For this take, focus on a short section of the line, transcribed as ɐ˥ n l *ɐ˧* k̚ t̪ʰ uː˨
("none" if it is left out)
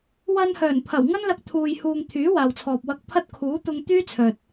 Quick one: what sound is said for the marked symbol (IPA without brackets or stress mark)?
ɐ˧